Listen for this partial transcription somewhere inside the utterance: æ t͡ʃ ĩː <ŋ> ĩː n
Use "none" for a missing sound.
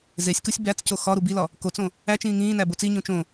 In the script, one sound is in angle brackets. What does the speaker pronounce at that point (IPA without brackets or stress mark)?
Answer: ŋ